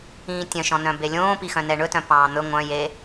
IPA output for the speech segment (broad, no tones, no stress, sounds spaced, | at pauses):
ĩː tʲ œ̃ ʃ ɔ̃ n œ̃ b e lʲ õː p i x œ̃ n ɛ ɳ ɵ t œ̃ p ɑ̃ː n̪ ɵ ŋʷ œ̃ j e